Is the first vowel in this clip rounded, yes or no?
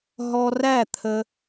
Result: yes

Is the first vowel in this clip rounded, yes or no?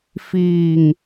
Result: no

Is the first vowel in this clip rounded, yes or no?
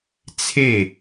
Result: no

